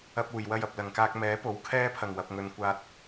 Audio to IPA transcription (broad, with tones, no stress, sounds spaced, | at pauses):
ɐ˧ p̚ uː˨˩ j w ɐ˧ j ɐ˨ p̚ l ɐ˨˩ ŋ k aː˧ k̚ m ɛː˨˥ p o˨˥ w kʰ ɛː˥ pʰ ɐ˨˩ ŋ w ɐ˨ p̚ ŋ ɵ˨ n kʷ aː˨ t̚